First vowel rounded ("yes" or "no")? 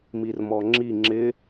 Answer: no